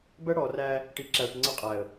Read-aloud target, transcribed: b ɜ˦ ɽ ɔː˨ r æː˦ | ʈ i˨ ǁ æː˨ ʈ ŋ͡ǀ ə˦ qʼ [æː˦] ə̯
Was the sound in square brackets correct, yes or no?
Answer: no